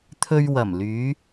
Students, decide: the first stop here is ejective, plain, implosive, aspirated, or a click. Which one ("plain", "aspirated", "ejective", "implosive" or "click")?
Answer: aspirated